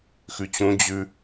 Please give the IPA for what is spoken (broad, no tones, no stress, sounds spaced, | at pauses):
x ʉ t͡ɕ ũ d͡ʑ ʉ